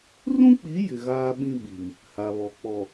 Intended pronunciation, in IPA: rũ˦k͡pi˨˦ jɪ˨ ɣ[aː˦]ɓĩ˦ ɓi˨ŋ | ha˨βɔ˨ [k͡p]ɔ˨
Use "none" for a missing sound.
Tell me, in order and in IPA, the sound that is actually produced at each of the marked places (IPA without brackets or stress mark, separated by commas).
aː˦, k͡p